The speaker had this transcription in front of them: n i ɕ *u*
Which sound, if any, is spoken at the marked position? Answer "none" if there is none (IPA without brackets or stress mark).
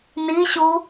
u